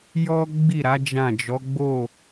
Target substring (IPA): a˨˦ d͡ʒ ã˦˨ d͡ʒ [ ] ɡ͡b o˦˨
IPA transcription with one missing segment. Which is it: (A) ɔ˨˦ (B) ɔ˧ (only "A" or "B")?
A